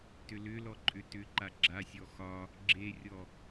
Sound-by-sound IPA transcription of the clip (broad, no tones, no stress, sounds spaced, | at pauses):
t ʏ l ʏ l ɔ ǃʼ ʏ t ʏ ǃ a ɡ͡ǁ a sʲ ɔ x ɒ | ɡ͡ǁ e rʲ ɔ